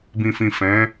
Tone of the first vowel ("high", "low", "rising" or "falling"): low